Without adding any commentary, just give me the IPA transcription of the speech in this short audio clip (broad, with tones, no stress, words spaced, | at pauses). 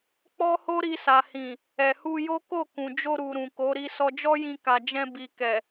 k͡pɔ˦ho˦ ɾi˧sa˨ hĩ˨ | ɛ˨hu˧jo˦ ko˦˨kũ˨d͡ʒo˧ɾu˨ ɾũ˨ko˨˦ ɾi˧sɔ˧d͡ʒɔ˦jĩ˧ ka˨d͡ʒɛ̃˧ bi˨kɛ˨